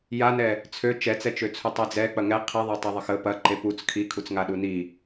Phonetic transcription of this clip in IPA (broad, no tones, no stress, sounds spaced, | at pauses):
j a n ɛ | t͡sʰ ø t͡ʃ ɛ t͡s ɛ t͡ʃ ø t͡sʰ u tˤ i d͡z ɛ k͡p ɐ ŋ ɛ qʰ i ðˤ e tˤ ɛ ðˤ ə x ə p ɐ ǃ e p u t͡s kʰ i kʰ u t͡s ŋ a ɗ u n i